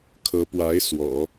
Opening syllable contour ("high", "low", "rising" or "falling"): rising